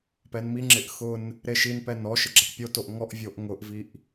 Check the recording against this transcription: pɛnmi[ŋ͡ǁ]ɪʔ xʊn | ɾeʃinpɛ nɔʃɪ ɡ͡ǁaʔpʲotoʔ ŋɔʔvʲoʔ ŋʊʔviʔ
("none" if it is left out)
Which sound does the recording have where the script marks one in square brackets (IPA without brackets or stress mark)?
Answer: ŋ͡ǁ